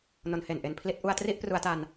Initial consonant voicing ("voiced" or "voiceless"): voiced